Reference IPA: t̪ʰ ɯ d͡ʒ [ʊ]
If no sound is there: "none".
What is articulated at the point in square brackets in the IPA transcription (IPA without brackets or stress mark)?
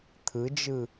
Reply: ɯ